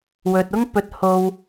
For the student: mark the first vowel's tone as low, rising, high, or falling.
low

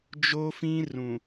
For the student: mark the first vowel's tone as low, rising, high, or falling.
high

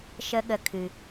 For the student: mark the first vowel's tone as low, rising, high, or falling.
high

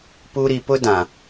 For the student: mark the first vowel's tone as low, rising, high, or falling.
high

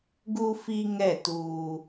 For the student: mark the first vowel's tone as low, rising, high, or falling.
high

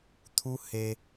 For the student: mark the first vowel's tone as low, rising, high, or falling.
high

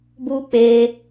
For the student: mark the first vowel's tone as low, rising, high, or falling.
high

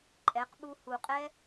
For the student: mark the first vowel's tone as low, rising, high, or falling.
rising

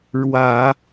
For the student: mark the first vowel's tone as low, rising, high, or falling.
low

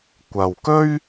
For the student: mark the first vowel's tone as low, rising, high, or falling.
low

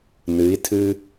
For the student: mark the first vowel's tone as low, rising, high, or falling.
rising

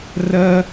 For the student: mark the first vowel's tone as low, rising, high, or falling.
high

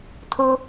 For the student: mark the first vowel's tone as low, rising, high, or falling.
high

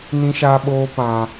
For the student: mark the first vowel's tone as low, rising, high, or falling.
high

